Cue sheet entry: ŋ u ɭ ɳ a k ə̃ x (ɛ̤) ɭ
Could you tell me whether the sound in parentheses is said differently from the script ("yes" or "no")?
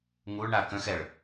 yes